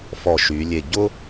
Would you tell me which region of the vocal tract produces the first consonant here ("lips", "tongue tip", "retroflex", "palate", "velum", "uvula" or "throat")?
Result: lips